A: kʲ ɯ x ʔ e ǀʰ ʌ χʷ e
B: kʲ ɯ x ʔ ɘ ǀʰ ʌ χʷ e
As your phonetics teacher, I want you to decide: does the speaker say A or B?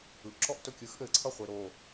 B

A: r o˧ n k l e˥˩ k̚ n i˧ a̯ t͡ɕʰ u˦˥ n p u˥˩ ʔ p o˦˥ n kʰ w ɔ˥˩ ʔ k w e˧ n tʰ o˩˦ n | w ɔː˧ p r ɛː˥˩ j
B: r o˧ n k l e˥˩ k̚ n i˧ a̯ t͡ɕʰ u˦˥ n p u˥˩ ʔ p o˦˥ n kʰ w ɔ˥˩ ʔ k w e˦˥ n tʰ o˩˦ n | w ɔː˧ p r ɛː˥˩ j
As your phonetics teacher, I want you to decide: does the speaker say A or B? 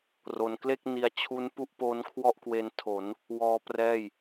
A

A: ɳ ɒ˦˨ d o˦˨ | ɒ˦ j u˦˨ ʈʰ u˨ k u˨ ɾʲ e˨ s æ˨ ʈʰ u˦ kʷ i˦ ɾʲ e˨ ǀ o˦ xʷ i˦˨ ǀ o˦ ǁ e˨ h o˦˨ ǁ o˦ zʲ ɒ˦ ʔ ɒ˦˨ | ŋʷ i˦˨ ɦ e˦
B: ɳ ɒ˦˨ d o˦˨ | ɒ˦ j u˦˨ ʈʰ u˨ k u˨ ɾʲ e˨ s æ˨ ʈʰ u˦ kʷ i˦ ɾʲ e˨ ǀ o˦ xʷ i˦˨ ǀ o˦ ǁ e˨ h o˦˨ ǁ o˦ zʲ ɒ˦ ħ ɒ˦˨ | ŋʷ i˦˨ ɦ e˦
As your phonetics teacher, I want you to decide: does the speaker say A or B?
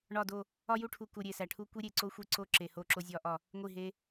A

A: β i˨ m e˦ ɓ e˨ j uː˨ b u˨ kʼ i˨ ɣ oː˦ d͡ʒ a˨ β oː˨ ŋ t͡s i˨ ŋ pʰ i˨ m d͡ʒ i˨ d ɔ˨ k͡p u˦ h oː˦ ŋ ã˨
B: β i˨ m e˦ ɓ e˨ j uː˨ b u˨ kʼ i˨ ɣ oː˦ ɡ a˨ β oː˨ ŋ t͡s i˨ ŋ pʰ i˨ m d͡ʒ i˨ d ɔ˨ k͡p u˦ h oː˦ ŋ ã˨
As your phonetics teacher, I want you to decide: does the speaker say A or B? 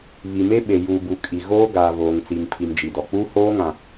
B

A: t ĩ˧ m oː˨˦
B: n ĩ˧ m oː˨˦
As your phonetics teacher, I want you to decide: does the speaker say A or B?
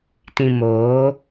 A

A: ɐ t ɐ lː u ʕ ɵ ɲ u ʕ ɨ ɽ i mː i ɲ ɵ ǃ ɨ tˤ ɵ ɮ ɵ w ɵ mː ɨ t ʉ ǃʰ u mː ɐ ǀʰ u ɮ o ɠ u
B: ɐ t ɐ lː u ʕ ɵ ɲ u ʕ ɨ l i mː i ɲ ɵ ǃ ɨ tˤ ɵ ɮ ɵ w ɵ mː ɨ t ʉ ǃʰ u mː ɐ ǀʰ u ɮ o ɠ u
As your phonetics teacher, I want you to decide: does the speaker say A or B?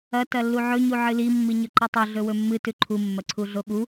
B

